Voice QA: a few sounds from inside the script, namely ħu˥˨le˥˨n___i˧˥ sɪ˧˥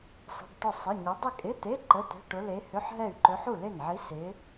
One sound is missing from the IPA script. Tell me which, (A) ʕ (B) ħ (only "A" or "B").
A